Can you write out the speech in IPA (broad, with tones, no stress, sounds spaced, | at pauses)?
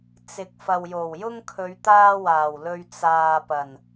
t͡s ɪ˨ k̚ f ɐ˨ w j o˨˩ w j ʊ˥ ŋ kʰ ɵ˨˧ ɥ t̪ aː˥ w aː˨˩ w l ɵ˧ ɥ t͡s aː˨ p ɐ˨˩ n